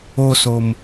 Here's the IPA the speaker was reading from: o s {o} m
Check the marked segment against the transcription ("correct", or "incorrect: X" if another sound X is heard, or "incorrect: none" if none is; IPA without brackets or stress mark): correct